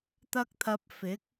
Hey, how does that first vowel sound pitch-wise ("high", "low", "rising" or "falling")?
high